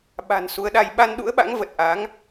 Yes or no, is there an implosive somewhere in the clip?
yes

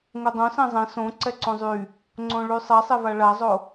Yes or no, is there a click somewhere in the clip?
yes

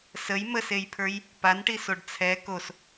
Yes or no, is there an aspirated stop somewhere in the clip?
yes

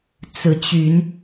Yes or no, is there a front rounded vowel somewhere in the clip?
yes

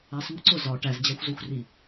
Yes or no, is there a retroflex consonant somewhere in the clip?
yes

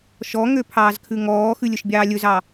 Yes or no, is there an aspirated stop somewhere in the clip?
yes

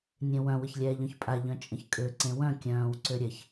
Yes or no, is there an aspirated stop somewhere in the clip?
no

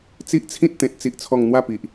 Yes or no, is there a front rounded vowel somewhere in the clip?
no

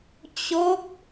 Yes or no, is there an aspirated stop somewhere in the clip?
no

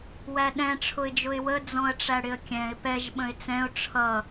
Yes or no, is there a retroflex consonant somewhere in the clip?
yes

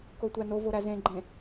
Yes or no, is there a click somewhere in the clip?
yes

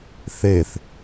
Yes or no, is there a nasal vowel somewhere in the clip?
no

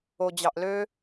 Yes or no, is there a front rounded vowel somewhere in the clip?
yes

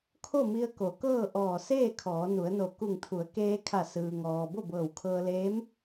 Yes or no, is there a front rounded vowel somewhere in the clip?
no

